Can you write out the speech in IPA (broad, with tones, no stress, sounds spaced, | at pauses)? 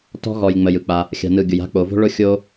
t ɔ̤˦ ɣ ɔ˨ j ŋ͡m ə˨ j ɯ˨ k͡p a˧ | xʲ a̤˨ n ɯ˨ ɡʲ ʊ˨ j a̤˧ k͡p o˨ v o̤˦ ɭ ʊ˦ xʲ o˦